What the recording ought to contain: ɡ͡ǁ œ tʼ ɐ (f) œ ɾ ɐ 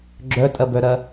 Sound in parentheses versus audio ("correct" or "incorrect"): incorrect